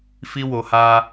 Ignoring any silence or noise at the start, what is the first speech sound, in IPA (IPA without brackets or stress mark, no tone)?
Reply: f